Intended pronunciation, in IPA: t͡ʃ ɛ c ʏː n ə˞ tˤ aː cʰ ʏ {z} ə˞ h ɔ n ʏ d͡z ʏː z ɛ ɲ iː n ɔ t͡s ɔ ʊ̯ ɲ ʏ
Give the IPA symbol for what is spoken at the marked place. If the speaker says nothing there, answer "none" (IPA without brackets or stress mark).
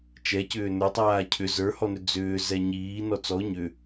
z